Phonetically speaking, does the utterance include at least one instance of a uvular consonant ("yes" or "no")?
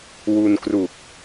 no